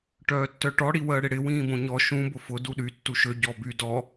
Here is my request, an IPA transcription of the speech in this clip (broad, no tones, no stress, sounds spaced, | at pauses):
ʈ œː tː œ ʈ ɔ ɽ i w əː ɽ ɪ ɽ ɪ w ĩː b õ ɲ ɔ ʃ ũ b ʊ f ʊ d u ɗ y tː u ʃ ø ɟ ɔ b y d ɔ